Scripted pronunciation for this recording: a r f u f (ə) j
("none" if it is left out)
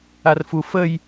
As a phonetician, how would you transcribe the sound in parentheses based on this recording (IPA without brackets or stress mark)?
ə